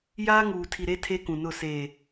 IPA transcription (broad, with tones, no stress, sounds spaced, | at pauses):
j aː˦ ŋ uː˨ tʰ i˨ ɾ e˦ tʰ e˦ k ũ˨ n ʊ˦˨ s eː˨